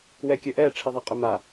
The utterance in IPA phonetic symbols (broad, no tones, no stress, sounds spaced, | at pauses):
w ɛ kʲ ɵ ʔ ɛ ʈ͡ʂʰ i ðˤ a qʼ ɵ m a